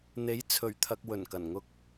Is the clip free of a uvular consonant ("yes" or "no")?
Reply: yes